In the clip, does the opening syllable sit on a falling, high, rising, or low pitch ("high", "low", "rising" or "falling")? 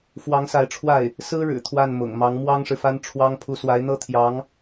rising